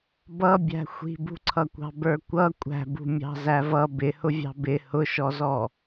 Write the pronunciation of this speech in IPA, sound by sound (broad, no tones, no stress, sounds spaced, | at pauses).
b ʌ bʲ æ̤ xʷ i̤ b ṳ ǀʰ ʌ kʷ ɑ̤ b ə˞ kʷ ʌ kʷʼ æ̤ b ṳ mʲ ɑ̤ z æ v ʌ b ɪ h ʊ vʲ ɑ̤ b ɪ h ʊ ʃ ɔ z ɔ